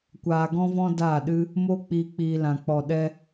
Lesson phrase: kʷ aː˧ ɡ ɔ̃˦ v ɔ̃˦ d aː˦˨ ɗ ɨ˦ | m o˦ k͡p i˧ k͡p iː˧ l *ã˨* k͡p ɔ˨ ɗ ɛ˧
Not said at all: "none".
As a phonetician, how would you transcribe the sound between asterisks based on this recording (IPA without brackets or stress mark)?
ã˨